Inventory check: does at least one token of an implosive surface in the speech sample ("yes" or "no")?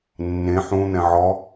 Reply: no